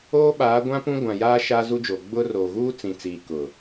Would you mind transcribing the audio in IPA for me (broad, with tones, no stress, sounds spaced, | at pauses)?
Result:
oː˦ ɓ aː˨˦ ɡʷ ã˦ p ũ˦ ɡʷ ã˨ j aː˦ ʃ a˦ z u˦ d͡ʒ oː˨ ɡ͡b ʊ˦ r oː˨ ɣ uː˦ t͡s ĩ˨ t͡s iː˨ k ʊ˨